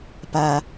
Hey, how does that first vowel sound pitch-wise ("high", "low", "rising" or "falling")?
low